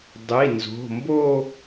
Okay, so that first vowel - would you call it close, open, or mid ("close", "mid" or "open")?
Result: close